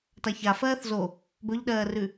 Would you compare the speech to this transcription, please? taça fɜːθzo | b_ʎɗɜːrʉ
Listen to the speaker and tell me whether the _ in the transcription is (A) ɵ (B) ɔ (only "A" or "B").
A